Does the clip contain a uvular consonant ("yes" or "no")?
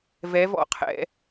yes